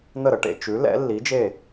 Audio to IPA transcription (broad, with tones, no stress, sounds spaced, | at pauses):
n̪ ə˥˩ ɾ ə˩ ʈ ḛ˧ t͡ʃ ʉ˩˥ l ɛ̰˩˥ lː i˩˥ d͡ʒ e˥˩